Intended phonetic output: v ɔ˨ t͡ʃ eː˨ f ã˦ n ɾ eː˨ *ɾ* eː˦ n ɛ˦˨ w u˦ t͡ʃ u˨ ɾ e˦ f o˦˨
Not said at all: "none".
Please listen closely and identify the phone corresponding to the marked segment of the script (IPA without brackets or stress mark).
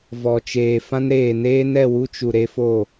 n